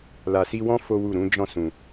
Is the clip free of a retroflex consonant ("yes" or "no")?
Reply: yes